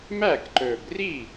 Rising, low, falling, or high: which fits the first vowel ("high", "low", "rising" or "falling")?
falling